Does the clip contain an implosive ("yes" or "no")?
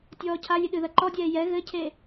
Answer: yes